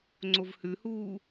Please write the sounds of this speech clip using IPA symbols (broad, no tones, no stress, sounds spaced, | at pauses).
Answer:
ŋ͡ǀ o v h ʉ h uː